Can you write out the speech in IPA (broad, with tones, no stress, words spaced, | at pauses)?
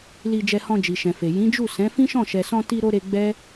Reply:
li˧d͡ʒɛ˧hɔ̃˧ d͡ʒi˨ʃɛ̃˨fe˨ jĩ˨˦d͡ʒu˦˨ sɛ̃˨˦ fĩ˦ʃɔ̃˦˨ʃɛ˨sɔ̃˧ ti˧ɾo˧ ɾe˧ɡ͡bɛ˦